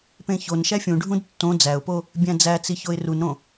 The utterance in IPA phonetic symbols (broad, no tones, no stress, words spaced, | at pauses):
pẽçonʃæ fʲũɖʱũd tːõ d͡zæʊ̯po | bʲæ̃d͡zæt͡si çoɪ̯runɾõ